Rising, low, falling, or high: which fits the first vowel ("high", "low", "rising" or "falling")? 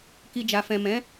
low